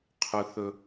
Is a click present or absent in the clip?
absent